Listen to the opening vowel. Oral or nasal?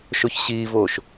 oral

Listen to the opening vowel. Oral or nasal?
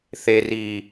oral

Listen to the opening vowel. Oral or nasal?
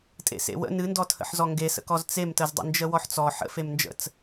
oral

